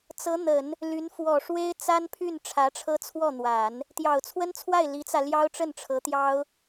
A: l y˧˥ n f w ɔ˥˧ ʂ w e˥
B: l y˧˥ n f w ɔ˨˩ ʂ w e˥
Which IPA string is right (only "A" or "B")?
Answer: B